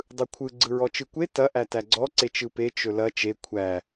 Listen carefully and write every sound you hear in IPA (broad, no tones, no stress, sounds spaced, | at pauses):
dˤ ɯ kʷʰ ɯ ɡ͡ǀ ɯ ɹ ɔ t͡ʃ ɯ kʷ e t ɐ ʔ æ t æ ɡ͡ǀ ɔ ǀ e t͡ʃ ɯ p e t͡ʃ ɵ l ɐ t͡ʃ e kʷʰ æ